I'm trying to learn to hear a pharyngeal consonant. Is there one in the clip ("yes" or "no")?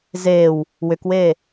no